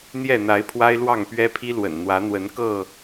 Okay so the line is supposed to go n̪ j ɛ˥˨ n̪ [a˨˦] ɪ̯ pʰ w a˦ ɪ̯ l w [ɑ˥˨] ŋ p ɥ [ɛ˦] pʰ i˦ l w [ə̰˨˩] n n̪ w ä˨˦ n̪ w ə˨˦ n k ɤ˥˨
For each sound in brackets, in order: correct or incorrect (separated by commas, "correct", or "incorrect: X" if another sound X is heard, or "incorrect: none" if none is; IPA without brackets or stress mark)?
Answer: correct, correct, correct, correct